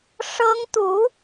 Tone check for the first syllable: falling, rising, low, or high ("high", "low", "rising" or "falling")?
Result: high